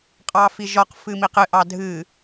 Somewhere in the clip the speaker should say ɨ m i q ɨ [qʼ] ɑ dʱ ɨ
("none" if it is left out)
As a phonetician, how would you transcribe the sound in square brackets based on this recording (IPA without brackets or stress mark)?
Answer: ʔ